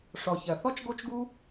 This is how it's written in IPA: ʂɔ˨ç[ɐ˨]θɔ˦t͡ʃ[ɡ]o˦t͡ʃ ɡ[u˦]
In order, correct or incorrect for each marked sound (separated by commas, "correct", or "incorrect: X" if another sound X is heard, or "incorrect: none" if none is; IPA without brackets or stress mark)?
correct, correct, correct